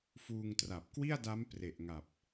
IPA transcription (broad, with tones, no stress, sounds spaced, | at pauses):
f uː˧ ŋ t r a˨˩ p̚ k w i˥˩ a̯ d a˦˥ m p r e˨˩ ʔ ŋ a˨˩ p̚